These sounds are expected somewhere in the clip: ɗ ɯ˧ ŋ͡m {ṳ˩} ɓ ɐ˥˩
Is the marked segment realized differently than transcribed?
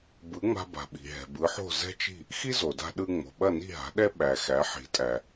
yes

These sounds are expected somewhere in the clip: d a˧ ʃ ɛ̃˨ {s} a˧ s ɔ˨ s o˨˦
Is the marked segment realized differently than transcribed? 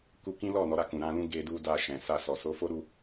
no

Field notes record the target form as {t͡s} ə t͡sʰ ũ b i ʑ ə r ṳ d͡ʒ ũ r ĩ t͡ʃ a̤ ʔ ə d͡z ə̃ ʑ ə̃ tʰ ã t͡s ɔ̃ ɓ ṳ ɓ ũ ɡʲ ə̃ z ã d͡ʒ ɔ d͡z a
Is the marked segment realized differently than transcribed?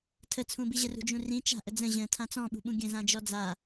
yes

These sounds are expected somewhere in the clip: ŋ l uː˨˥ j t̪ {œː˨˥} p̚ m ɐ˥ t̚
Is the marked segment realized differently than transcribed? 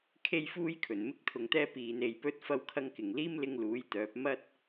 no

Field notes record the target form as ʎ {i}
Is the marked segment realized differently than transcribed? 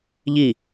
no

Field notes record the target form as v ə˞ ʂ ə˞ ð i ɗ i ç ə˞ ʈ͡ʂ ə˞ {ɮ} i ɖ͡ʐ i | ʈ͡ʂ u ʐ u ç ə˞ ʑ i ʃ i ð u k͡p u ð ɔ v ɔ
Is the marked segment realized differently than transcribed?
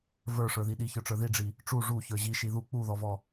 yes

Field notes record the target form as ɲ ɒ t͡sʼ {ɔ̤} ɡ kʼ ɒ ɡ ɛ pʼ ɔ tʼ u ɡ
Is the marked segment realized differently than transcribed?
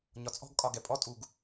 no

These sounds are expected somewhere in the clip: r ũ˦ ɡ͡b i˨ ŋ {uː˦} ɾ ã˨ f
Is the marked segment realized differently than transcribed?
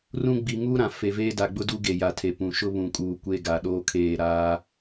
no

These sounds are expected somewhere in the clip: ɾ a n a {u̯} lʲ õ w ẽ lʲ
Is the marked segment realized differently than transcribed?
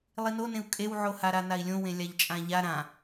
yes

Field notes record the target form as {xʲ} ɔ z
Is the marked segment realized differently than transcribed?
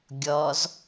yes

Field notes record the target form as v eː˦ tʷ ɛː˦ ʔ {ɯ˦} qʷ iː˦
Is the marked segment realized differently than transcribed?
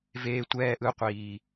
no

